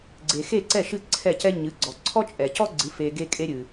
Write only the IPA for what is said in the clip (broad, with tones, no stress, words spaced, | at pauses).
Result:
ɡ͡ǀe˩xe˥˩ǀɛ˥˩ ʃɨ˥˩ǀʰɛ˥˩cɛ˥ ɲɨ˩˥ ɡ͡ǀɔ˩ ǀʰɔ˥t͡ʃʼɛ˩cɔ˥ɡ͡ǀɨ˩˥ fe˧ ɡe˥kʼe˥ɾʲɨ˩